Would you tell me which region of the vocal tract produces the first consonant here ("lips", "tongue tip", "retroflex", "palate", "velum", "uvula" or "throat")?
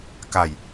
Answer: velum